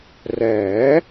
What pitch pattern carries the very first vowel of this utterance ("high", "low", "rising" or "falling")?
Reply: rising